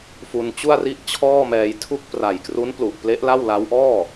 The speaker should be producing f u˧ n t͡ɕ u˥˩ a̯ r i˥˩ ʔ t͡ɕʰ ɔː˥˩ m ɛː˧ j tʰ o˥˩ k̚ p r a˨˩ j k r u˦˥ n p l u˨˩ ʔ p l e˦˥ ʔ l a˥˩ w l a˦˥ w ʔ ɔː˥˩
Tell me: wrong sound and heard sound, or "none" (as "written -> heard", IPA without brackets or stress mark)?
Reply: o˥˩ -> u˥˩